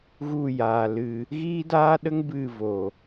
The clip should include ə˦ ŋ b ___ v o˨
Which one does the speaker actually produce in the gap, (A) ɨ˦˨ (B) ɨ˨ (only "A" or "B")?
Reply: A